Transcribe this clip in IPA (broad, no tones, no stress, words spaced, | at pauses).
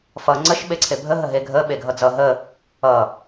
fʌ ŋ͡ǀəʃ ɓeǀʰebʱə ɦəɦeɡʱə ɓeɡʱʌd͡zʌ ɦə | ʌ